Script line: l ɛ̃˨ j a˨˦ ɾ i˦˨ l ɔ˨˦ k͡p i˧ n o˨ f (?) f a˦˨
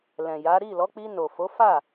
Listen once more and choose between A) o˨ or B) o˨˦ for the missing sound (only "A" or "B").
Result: B